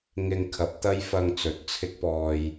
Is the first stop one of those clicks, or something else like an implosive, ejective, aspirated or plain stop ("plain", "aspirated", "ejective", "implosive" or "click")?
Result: aspirated